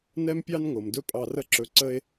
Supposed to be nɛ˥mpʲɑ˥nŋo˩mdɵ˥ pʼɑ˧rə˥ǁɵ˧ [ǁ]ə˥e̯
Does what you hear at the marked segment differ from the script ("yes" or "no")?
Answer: yes